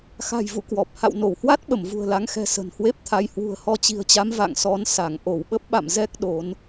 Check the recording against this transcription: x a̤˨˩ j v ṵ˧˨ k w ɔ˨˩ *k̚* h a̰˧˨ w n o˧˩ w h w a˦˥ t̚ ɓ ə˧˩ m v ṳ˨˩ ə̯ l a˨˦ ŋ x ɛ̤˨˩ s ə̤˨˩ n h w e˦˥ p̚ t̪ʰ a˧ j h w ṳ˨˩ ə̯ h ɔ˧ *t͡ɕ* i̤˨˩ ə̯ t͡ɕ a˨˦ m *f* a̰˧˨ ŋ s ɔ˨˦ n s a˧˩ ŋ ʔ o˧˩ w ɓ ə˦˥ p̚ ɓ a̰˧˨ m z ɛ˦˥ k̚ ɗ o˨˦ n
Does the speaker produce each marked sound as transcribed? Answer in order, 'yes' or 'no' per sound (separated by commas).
no, yes, no